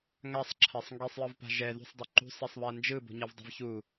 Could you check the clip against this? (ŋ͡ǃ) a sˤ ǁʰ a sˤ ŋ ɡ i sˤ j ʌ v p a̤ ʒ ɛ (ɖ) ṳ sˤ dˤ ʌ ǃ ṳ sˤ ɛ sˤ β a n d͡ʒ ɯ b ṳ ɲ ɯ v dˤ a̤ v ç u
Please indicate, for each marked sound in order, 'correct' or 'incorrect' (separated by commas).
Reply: incorrect, incorrect